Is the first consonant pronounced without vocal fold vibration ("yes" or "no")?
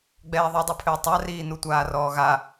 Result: no